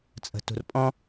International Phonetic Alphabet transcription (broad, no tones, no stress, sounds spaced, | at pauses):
t͡sʼ ə̤ t ṳ r pʼ ɔ̃